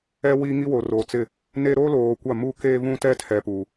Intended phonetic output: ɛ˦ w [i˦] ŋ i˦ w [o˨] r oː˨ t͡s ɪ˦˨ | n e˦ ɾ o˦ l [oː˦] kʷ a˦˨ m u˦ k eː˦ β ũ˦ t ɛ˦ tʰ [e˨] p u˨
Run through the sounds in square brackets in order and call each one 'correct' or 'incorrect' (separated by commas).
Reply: correct, correct, incorrect, incorrect